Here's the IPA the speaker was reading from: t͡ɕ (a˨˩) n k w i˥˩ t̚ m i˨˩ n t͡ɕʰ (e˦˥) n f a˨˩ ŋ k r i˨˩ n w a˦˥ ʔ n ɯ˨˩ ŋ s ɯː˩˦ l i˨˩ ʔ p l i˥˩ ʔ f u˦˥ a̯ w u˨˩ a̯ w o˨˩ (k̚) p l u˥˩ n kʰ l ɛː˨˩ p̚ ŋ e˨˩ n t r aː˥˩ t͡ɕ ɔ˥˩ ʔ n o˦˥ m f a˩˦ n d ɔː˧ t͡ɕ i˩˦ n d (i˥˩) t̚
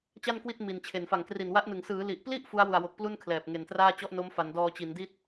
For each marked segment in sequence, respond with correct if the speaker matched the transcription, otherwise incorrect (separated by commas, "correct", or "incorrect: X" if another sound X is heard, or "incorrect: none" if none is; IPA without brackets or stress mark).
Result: incorrect: a˥˩, incorrect: e˨˩, correct, correct